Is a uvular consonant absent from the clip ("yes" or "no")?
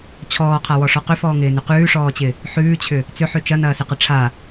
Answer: no